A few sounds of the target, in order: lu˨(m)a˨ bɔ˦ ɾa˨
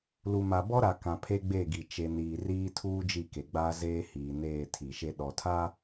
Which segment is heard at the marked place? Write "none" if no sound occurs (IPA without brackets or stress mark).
m